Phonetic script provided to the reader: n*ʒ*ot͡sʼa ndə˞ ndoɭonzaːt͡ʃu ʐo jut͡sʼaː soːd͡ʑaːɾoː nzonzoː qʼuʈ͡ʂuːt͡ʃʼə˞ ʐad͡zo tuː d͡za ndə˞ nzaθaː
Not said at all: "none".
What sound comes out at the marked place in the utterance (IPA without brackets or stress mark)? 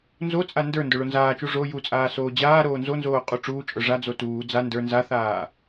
z